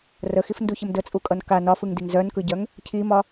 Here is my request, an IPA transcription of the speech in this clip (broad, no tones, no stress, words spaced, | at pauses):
rəxifnduçəm dət͡sʼukʼʌn ka nɒfɯŋdiŋ zœnkɯɟœŋ | cʰimɒ